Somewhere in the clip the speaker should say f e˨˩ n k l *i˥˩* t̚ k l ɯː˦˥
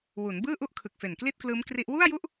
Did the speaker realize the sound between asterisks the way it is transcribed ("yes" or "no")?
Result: yes